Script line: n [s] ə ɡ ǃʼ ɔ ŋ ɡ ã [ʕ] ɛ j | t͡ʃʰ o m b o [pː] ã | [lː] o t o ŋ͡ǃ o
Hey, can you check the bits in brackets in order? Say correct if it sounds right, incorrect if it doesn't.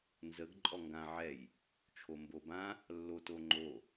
incorrect: z, correct, incorrect: b, correct

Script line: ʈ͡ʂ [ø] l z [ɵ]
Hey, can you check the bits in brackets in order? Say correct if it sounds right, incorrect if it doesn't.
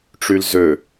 incorrect: y, incorrect: ø

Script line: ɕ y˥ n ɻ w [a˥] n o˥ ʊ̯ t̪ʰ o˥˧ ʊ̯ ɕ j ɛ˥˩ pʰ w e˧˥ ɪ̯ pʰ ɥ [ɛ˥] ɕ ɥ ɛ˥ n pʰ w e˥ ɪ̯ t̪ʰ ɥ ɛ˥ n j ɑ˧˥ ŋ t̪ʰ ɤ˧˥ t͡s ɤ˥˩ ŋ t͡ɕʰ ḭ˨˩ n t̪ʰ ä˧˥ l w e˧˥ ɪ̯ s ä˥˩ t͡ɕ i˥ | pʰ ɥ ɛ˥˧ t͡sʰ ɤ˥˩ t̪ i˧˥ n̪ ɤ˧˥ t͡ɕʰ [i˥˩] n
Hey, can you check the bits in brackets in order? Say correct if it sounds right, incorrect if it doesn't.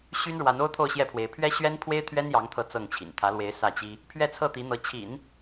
incorrect: a˧˥, correct, incorrect: ḭ˨˩˦

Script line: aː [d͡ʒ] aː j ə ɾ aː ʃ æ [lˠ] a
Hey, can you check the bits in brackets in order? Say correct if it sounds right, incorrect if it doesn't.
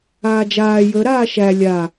correct, incorrect: lʲ

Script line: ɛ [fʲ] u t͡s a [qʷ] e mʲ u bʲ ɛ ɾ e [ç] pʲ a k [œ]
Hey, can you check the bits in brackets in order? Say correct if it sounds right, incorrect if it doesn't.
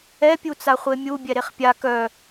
incorrect: pʲ, incorrect: χʷ, incorrect: χ, correct

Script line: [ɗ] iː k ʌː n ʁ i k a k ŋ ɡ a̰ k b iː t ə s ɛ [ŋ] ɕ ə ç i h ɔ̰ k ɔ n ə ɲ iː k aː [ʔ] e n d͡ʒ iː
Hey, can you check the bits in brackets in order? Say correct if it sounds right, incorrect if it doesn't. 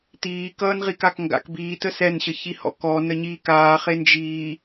incorrect: t̪, incorrect: n, incorrect: χ

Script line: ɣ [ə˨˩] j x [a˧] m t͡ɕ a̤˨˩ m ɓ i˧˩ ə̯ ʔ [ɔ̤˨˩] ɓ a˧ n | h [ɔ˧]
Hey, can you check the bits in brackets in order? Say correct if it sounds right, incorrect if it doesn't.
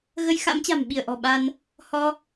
incorrect: ə˧, incorrect: a̰˧˥, correct, correct

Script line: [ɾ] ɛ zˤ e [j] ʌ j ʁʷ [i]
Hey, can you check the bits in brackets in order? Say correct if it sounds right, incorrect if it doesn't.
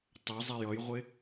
incorrect: tˤ, correct, incorrect: e

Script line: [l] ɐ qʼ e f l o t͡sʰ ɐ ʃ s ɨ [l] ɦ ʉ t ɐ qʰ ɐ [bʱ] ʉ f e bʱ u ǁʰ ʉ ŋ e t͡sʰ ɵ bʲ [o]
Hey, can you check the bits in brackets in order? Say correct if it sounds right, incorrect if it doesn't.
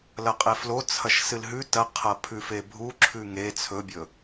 correct, correct, incorrect: pʰ, incorrect: ɵ

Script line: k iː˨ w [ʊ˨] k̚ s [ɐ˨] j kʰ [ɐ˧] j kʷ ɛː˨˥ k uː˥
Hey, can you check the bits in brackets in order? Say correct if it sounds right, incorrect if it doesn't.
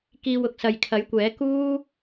correct, correct, incorrect: ɐ˨˥

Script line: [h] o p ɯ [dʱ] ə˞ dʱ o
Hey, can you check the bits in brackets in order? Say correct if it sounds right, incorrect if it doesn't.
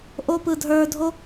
incorrect: ʔ, correct

